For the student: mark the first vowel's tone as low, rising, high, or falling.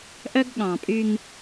high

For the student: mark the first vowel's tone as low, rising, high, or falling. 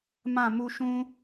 falling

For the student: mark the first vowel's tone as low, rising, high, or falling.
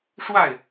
falling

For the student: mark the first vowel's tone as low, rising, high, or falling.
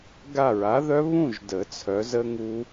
falling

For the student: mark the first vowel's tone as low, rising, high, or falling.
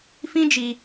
high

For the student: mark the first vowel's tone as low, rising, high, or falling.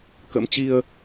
rising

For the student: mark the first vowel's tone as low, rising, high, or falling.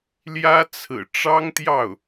high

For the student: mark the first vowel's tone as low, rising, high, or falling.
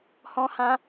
high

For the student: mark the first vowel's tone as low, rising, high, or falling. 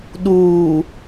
low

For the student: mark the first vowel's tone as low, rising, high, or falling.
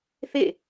falling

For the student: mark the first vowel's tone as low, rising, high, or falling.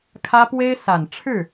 high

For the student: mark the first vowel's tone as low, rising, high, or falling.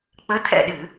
rising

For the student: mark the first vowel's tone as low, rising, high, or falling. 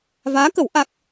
rising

